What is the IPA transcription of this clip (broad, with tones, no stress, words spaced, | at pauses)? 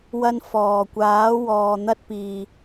wɐ˧n fɔː˨˩kʷaː˨˥wɔː˨ n̪ɐ˥t̚piː˨